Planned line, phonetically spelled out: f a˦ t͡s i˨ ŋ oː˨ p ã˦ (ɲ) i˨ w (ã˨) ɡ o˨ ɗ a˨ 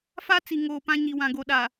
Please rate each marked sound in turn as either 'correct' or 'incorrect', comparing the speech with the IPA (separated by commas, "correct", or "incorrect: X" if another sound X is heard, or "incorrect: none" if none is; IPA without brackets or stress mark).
correct, correct